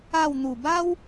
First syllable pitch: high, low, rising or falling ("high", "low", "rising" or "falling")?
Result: falling